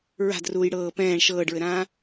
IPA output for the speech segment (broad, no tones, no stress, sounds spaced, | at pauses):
ɹ a̤ d r uː j ɽ ɤː p ɛ̃ː ɳ ʃ ɤː ɖ ɹ ɘ ɾ ãː